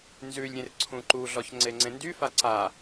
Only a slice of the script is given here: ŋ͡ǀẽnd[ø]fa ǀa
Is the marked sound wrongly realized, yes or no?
yes